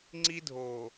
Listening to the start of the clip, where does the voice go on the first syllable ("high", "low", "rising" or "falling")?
high